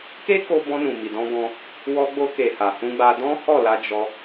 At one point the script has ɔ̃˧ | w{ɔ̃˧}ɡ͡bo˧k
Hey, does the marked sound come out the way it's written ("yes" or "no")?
no